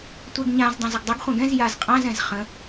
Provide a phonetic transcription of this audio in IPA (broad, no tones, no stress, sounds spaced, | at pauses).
tʷ ɛ ɡ ɲ ã z dˤ ã z ə ɡ dˤ ɪ ɡ χʷ ɛ̃ ɡ ɛ̃ z j a z qʼ ã z ɛ̃ z χ ə̃